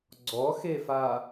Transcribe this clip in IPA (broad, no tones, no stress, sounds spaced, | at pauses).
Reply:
ɡ͡ǀ ɔ x e f a